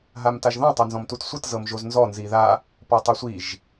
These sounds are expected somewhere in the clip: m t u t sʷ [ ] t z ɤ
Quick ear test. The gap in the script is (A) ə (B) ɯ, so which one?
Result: B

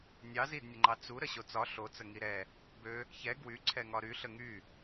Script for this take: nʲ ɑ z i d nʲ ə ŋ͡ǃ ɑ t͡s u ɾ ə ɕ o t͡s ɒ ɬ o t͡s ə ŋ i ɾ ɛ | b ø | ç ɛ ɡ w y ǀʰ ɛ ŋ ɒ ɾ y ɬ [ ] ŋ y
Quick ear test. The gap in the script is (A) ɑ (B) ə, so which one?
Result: B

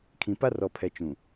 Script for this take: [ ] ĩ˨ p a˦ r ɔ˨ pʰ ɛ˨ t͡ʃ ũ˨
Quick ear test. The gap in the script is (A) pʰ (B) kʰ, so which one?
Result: B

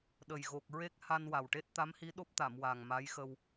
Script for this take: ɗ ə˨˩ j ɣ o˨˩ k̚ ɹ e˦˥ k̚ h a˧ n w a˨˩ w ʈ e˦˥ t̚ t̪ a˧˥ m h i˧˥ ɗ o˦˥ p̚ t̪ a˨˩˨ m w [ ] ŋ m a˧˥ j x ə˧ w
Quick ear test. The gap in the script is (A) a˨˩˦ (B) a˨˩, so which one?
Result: B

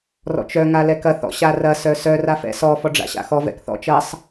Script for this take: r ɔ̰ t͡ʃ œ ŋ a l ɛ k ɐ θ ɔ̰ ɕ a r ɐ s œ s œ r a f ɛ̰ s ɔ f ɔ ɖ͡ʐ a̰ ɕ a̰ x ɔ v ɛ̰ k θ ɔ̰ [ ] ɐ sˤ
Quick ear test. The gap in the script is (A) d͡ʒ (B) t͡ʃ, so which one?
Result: B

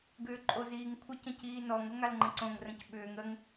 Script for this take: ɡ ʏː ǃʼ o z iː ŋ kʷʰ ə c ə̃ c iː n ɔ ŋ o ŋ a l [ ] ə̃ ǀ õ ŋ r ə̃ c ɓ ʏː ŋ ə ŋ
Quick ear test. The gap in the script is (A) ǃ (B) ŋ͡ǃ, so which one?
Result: B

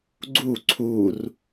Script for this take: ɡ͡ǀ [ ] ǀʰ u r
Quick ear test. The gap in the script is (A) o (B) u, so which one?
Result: B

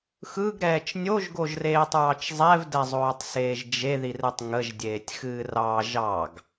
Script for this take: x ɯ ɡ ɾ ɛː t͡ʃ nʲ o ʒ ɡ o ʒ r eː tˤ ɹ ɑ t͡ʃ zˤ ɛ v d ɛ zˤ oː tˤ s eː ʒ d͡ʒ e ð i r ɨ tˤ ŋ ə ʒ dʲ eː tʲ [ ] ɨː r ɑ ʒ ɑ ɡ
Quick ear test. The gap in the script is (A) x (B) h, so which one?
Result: A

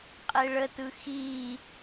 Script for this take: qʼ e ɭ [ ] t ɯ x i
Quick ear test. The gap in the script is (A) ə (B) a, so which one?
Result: A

